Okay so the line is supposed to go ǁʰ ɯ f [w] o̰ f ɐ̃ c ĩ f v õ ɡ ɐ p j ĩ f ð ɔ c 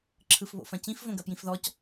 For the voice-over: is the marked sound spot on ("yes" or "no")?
no